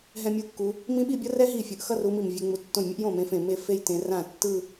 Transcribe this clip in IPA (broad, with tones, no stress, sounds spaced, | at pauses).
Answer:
ɦ ɛ̃˥˧ mʲ u˥˧ kː u˨˦ | m ĩ˦˥ ɓ i˥˧ bʲ ʌ˦˥ r ɛ˦˥ ɦ i˥˩ fʲ ɯ˧˩ ʔ x ʌ˥˧ r u˨˦ m i˧˩ m vʲ e˨˦ ŋ͡m u˧˩ tː õ˥˩ j mʲ ɯ˦˥ ʔ j õ˥˩ m ẽ˨˦ f ẽ˧˩ m e˥˩ f e˥˧ j t ẽ˨˦ r ã˥˩ tː ɯ˥˧